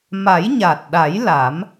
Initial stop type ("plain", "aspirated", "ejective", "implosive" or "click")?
plain